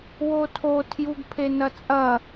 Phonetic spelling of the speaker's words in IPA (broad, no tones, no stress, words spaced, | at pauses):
wotʰo tʰjuɡpʰenɐt͡sʼɐ